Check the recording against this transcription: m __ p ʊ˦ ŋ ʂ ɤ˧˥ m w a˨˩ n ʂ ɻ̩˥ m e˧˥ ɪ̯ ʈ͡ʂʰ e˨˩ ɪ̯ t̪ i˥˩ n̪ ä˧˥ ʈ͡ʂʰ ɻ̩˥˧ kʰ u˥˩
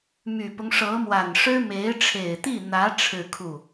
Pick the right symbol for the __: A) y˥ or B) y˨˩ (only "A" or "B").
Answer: B